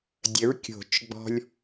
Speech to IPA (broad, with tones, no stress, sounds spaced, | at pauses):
dʲ ə˩˥ ɹ kʲ o̤˨˩˦ t͡ʃ ɡ͡b ɔ̤˧ lʲ